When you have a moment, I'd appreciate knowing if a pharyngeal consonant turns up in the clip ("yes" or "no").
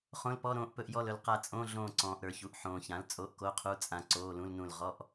yes